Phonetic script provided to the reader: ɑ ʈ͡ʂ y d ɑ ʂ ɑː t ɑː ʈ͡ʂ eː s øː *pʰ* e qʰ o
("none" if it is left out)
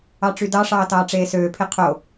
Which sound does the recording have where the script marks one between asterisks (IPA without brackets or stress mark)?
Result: pʰ